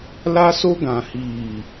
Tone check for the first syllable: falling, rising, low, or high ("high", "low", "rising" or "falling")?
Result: high